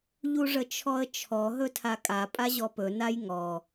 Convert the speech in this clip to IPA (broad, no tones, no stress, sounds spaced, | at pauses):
ʎ u ʐ ə t͡ʃʰ ɔ ə̯ t͡ʃʰ ɔ ɦ ɵ tʰ a kʼ a pʼ a ʑ ɔ p ɵ n a j ŋ ɔ